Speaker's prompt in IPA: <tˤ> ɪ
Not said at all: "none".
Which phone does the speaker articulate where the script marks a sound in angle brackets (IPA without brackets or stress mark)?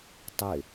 tˤ